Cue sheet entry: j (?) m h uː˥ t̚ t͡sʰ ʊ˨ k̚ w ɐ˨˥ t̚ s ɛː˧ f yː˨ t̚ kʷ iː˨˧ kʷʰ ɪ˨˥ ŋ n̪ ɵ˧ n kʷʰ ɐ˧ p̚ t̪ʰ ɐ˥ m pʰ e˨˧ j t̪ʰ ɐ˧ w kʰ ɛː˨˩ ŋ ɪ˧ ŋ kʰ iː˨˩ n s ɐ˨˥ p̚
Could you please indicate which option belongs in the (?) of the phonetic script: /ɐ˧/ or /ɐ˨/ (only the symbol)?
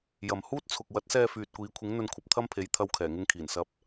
ɐ˨